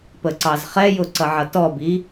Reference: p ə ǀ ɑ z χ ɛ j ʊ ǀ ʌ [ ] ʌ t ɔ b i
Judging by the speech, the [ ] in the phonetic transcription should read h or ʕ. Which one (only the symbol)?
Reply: ʕ